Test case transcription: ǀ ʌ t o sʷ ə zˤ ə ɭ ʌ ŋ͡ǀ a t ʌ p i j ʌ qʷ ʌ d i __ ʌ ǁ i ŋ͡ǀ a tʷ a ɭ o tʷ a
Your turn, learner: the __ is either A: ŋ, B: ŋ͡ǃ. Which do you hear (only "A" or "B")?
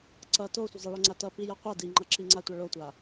B